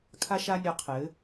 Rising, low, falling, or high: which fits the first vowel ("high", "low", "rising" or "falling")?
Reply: high